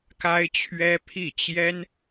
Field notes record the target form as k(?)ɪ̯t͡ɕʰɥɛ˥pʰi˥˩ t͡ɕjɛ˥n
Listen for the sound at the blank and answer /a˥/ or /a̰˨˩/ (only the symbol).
a˥